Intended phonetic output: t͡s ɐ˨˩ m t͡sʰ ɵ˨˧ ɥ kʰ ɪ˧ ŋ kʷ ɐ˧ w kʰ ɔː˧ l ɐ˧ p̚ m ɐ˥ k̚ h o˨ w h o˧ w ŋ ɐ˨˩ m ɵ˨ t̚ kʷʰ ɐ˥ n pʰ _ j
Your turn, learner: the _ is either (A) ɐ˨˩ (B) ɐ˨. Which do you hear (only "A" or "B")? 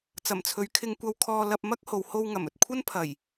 A